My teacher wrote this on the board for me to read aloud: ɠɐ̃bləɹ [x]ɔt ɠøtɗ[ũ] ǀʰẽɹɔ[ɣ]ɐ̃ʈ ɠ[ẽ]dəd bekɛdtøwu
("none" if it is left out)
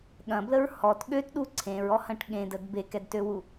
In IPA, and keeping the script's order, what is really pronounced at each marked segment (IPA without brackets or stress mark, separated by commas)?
h, u, h, ẽ